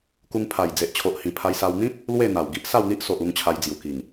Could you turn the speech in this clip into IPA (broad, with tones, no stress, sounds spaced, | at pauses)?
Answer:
k u˧ ŋ pʰ a˨˩ j d͡z e˨ ʔ t͡ɕʰ o˨ ʔ h ĩ˨˩ pʰ a˧ j s a˧ w n̪ ĩ˦ t̚ | l w e˥˧ n̪ a˨˩ w ɡ i˦ ʔ s a˥˧ w n̪ i˦ ʔ s o˨ ʔ u˧ ŋ t͡ɕʰ a˧ j d͡z j u˨˩ k i˨˩ ŋ